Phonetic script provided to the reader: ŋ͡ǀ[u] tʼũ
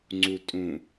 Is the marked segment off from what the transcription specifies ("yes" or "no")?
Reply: no